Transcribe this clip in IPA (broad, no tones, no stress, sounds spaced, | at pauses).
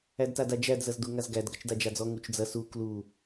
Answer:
æ d t a d a d͡ʒ æ d z ɐ z d u ŋ a z ɡ æ d ɡ ɐ t͡ʃ d a d͡ʒ a d͡z ɔ ŋ u t͡ʃ d͡z ɐ s u k l u